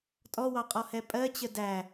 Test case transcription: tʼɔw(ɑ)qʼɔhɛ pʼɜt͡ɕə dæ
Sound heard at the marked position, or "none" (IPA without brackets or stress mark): ɑ